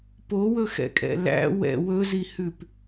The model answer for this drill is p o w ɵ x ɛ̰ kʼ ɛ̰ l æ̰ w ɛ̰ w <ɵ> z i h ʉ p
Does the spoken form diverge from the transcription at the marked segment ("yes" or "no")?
no